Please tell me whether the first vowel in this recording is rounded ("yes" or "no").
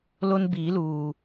yes